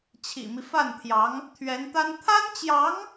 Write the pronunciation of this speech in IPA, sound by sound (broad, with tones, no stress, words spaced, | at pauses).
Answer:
t͡ɕʰḭ˨˩mi˦ fa˥˩nt̪ʰjɑ˧˥ŋ | t̪ʰɥɛ˧˥nt̪a˥n t̪ʰa˥nt͡ɕjɑ˧˥ŋ